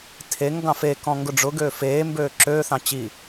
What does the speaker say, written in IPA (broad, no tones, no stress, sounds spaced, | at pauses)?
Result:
tʰ e ŋ ɡ ɑ̃ f e k ɔ̃ ŋ ɡ ʊ ɖ͡ʐ ʊ ɡ øː f eː m b øː ǁ øː θ ɑ̃ t͡ɕ i